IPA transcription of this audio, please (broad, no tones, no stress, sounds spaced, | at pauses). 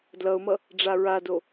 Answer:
d l ʌ ʊ̯ m ʌ | ɖ͡ʐ a ɹ a d o